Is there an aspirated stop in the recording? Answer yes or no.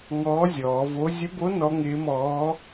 no